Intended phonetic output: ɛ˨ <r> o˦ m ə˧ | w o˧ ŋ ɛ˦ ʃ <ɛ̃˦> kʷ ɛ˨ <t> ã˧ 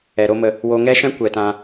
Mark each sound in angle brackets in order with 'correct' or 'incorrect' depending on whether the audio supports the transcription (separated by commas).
incorrect, correct, correct